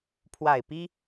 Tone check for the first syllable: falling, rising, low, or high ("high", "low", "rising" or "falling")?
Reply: low